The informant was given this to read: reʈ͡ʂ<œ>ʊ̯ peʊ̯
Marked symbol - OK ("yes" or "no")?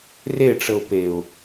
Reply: no